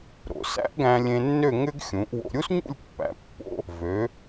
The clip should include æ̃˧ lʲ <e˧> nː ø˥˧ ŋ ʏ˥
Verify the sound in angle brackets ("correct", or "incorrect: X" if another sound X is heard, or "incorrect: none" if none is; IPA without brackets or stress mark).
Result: incorrect: ẽ˧